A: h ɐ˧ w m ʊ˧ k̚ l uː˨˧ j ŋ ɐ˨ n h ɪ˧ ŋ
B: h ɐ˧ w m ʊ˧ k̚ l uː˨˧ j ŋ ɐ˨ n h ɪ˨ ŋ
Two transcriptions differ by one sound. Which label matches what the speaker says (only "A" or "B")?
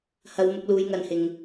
B